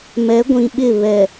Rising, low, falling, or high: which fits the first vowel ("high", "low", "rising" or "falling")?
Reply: rising